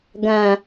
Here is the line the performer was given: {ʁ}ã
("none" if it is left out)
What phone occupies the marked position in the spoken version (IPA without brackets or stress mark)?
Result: ɡ